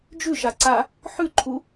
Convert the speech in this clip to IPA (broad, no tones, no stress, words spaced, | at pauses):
d͡ʒʉʃaǀa | ħʉǃʰu